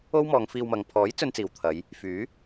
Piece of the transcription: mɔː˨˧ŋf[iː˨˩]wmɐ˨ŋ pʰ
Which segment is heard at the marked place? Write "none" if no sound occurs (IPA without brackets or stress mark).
iː˧